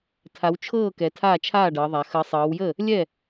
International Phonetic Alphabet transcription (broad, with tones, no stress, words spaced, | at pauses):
tʰa˨˦wt͡ʃʰɤː˥˨kɛ˨˦ tʰaː˥˨ t͡ʃʰaː˥˨ɖɤ˨˦ðˤa˨˦ xəː˨˦sˤɤː˨˦wjəː˥˨ | lʲɛ˥˨